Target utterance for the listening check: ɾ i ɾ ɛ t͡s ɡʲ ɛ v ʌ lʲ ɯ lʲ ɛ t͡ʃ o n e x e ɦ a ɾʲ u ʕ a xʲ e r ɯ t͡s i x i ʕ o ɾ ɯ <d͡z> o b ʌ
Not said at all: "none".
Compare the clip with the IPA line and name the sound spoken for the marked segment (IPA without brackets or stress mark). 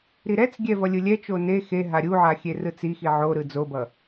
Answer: d͡z